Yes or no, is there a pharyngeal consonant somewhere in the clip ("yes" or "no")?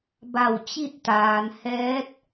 no